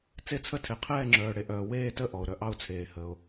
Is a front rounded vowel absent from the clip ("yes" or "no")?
no